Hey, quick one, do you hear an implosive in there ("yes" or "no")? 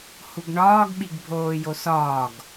yes